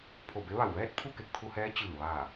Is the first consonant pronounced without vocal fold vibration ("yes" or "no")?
yes